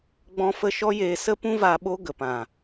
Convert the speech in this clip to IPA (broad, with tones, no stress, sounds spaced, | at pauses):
ɡ͡b ɔ̃˧ f ə˧ ʃ ɔ˦ j eː˧ s ə˦ p ũ˦ v a˧ ɓ o˦ ɡ ə˨ p ã˨